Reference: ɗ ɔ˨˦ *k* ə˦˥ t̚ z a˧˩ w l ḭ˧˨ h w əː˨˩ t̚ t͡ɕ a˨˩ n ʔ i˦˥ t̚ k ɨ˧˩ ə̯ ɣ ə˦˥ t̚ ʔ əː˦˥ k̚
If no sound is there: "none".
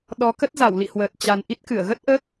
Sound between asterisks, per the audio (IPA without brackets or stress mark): k